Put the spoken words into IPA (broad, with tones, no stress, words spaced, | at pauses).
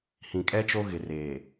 hĩ˨kʼɛ˦t͡ʃo˦ ɣɪ˨ reː˨